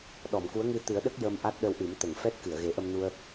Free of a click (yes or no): yes